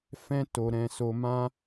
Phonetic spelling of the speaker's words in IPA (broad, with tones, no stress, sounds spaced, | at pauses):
f ɛ̃˦ t o˧ ɾ ɛ̃˧ s o˧ m ã˦